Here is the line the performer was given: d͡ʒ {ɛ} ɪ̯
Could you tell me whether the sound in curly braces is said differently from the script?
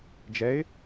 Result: no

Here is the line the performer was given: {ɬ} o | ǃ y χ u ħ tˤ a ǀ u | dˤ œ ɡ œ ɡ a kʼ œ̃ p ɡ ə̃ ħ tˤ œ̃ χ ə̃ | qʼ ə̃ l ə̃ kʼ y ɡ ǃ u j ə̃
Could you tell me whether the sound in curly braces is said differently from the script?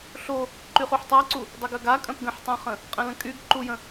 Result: no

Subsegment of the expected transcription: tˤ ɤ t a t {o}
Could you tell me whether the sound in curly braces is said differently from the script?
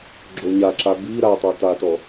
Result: yes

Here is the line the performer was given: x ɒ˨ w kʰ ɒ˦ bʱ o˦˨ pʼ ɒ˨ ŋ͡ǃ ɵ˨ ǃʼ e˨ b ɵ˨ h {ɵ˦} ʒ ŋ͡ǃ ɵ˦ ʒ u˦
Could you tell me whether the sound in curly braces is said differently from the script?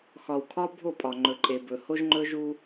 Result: yes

